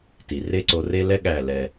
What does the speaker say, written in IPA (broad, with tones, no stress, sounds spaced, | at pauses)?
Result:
t i˨ r e˦ ǀ o˧ r e˦ l ɛ˦ ɠ æ˦˨ l ɛ˧